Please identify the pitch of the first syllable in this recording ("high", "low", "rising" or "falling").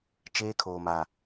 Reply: high